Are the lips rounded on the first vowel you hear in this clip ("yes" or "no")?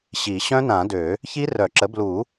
no